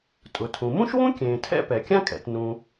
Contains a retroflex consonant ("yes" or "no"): no